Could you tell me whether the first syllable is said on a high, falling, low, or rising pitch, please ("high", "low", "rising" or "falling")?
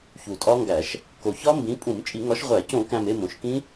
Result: low